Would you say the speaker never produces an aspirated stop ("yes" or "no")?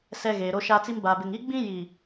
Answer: yes